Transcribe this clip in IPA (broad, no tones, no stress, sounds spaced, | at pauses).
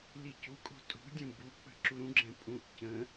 l i c u kʼ o̤ tʼ ṳ dʲ ũ b u k͡p ə̤ ǁ u ɾ ũ ɡ͡ǁ ɛ̃ pʼ ũ ʔ c ə̃